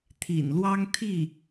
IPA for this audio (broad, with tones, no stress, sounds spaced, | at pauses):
t̪ʰ ḭ˨˩ n l w ɑ˥ ŋ t̪ʰ i˥˩